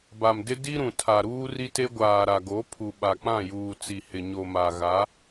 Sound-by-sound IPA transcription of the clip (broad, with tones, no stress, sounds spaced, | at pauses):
b a˨ m d ɪ˦ d i˦ ɾ ũ˨ tʰ a˨ ɾ uː˦ r i˦ t e˦ ɡʷ aː˨ ɾ a˨ ɡ o˨˦ pʰ u˨ ɓ a˨ k͡p ã˦˨ j uː˨ t͡s i˨ h ɪ˨ ɲ o˨ m a˨ ɣ a˨˦